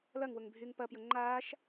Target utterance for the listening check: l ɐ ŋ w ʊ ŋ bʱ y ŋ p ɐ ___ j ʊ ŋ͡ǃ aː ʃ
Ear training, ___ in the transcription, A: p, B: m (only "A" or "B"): A